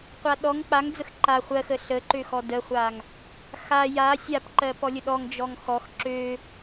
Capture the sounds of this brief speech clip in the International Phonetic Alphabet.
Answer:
qʷaɗɔŋ k͡paŋd͡zəx ǃa χʷɜxə ɬəǃø xɔdəχʷaŋ | xa ja sʲapǃɜ pɔlʲəɗɔŋ d͡ʒɔŋxɔx ǁø

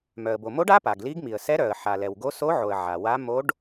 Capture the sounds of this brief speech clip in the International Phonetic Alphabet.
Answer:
mœ˩ə̯bo˩mo˧˥ɖ a˧˥ pa˩ɡli˧˥ɡmi˩ə̯ sɛ˧˥ ɾœ˩ə̯ħa˩lɛ˩wɡo˧˥ so˧˥ʕo˩ə̯ ʕa˩wa˧˥ mo˧˥ɖ

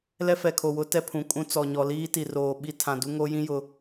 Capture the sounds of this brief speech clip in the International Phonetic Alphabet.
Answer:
lɛ˦fɛ˨kʰo˨wʊ˦ tɛ˦pʰũ˨kʼũ˦ t͡sɔ˨ ɲɔ˨liː˦ ti˨roː˨ ɓi˦ tʰã˨du˦ ŋo˦jĩ˦ jʊ˨˦

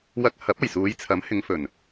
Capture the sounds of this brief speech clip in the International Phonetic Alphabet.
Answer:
wɐ˧k̚hɐ˨˥p̚ɐ˨˩jsuː˨˧j t͡sʰɐ˨˥mhɪ˨˧ŋfɵ˨˩n

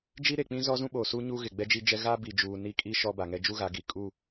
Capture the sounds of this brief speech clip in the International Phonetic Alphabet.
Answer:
d͡ʒi˦ɾe˨k͡pĩ˦ zɔ˦zũ˦ɓoː˨ su˦ ɲu˦ɣɪ˨ ɡ͡bɛ˦d͡ʒi˦d͡ʒɛ˦ ɣa˦ bi˨d͡ʒuː˨ ni˦ kʼi˦ ʃɔ˦ba˨ŋɛ˦ d͡ʒu˦ɣa˨˦ ɡi˨ kʼu˦˨

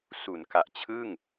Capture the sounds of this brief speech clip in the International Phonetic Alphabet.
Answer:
su˩˦nka˨˩ʔt͡ɕʰɯ˥˩ŋ

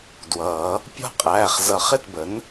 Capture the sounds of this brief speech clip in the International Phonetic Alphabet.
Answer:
dwʌː˨˩˦ | pʲɔ̤˥˩qʼæː˩˧˩χ zʌ˨˩˦χɪ˥˩tbə˩˥n

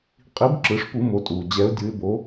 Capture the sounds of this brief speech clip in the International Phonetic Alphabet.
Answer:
qʼi˨˥b ǁɯ˩˧ʂpu˧˩˧mo˩˧tʼuː˩ d͡ʑɛ˩˧ʊ̯dʲɯ˩˧ɪ̯bo˩˧

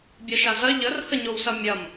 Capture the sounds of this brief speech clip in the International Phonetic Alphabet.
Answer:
bʲɐʃazɐ ʎər həɲowsɐmʲɐm

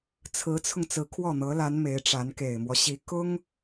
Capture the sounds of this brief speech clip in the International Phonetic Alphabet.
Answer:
t͡sʰɹ̩˧˥t͡sʰʊ˧ŋ t͡sɹ̩˧˥kʰwɔ˥˩n̪ɤ˧˥la˧˥n me˧˥ɪ̯ʈ͡ʂa˧˥n ke˨˩ɪ̯mwɔ˦ɕi˧˥ kʊ˥ŋ

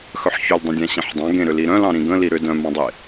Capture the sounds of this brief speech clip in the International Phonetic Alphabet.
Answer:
xœħçʏldˤə̃dʲã ɕẽħdˤɑ̃ ɡẽɾʏ liɾœ̃lɑ̃ ɾĩɡə̃ liɾʏ dœ̃ mɑ̃dˤe

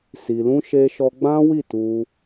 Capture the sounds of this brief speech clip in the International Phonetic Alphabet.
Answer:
si˧lũ˦ʃe˦ʃɔ˦ ɡ͡bã˦wi˦˨ tu˧

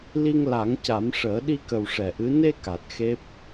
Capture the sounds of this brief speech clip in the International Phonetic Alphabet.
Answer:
li˧ŋla˨˩˦ŋca˨˩˦mʂəː˨˩˦ ɗi˧kə˨˩w ʂɛ˨˩ʔɨ˧˥ ne˧ ka˨˩t̚xe˦˥p̚

